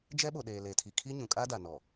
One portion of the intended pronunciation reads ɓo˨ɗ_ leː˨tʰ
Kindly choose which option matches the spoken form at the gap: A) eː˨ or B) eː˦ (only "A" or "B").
A